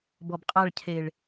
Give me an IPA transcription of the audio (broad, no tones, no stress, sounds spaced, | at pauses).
b ɔ b qʼ a ɭ cʰ e ɭ